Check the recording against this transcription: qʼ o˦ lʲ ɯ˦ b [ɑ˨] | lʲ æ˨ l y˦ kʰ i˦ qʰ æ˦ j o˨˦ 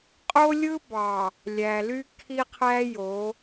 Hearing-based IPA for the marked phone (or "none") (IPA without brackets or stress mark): ɑ˨